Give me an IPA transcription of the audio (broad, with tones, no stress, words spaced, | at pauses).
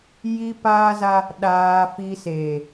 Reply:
ji˦paː˦za˦ | ɗaː˦fi˦ seː˨